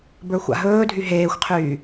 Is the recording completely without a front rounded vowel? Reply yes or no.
no